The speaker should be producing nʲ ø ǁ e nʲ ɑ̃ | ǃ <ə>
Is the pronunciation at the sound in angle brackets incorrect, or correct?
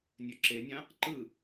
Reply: incorrect